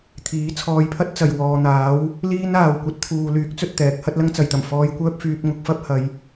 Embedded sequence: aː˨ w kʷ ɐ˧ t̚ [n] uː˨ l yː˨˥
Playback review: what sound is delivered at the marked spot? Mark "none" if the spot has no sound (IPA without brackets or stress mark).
t̪ʰ